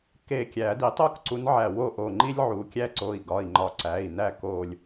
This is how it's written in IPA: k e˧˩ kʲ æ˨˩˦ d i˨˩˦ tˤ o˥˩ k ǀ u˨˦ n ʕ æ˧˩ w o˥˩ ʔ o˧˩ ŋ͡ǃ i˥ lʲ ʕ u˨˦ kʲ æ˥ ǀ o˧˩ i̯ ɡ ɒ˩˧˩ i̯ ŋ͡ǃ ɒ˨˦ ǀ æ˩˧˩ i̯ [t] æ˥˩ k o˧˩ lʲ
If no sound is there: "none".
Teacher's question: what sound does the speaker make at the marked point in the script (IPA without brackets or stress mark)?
n